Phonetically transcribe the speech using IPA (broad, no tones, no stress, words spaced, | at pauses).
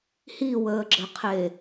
hiwəːɡ͡ǁəqʰe